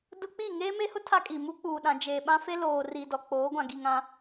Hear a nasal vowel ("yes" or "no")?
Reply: yes